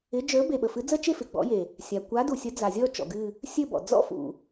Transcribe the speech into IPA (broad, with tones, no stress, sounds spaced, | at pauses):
ɪ˨˥ d͡ʒ ə˞˨˥ b e˩ ɓ ə˩ f ɨ˨˥ d͡z ə˥˧ t͡ʃ e˥˧ f ɪ˩ ɡ͡b ɔ̰˨˥ j e˩ | sʲ a˩ kʷ a˨˥ d u˩ sʲ ə˨˥ d͡z a˩ zʲ ɔ˥˧ t͡ʃ ɔ̰˩ ɡ ɨ˥˧ | sʲ ɘ˥˧ b ɔ̰˩ d͡z ɔ̰˥˧ f ṵ˩